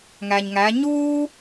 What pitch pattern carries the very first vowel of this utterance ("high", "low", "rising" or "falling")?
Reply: low